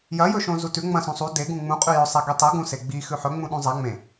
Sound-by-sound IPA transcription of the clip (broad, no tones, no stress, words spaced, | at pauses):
jɐjɵʃõ zutʉ ŋ͡mɐ̃ sũsˤu deɡũ ŋ͡mũqʼʉ jɵsˤe ɡitˤe ɡũse ɡ͡bi xʉħɵŋ͡mũ ɗũzˤa ŋ͡mẽ